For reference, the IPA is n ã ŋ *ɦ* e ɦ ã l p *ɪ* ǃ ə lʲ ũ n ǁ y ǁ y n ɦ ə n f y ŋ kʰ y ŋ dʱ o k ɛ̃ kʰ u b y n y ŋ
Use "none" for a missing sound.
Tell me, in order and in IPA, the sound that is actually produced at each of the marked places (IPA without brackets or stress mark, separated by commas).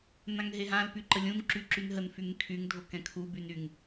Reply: ɦ, y